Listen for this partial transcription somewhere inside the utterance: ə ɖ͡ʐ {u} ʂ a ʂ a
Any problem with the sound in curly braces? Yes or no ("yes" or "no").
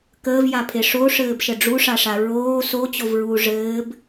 no